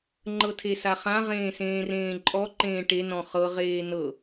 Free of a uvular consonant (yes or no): no